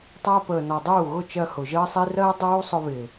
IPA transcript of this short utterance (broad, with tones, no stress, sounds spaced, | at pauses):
tˤ æ˧ p əː˨ n ɔ˨ dˤ uː˦˨ ɣ ʊ˦˨ t͡ʃ ɜ˧ h ʊ˨ ʒ əː˦ sˤ i˦ r ɜ˦ dˤ uː˦ sˤ ʊ˧ β ɪː˨